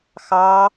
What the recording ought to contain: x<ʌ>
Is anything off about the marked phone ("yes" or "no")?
yes